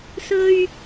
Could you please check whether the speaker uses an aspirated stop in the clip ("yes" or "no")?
no